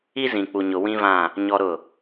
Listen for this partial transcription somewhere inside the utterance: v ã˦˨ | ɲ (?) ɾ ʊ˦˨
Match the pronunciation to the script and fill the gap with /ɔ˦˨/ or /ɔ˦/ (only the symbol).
ɔ˦